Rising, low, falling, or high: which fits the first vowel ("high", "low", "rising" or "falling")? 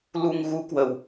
low